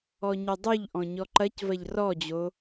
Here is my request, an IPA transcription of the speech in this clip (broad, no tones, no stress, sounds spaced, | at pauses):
ɔ ɲ ɵ dˤ u ʎ ʔ ɔ̃ ɲ ɔ ǃ ɐ c v ɐ ʎ r ɔ d͡ʑ o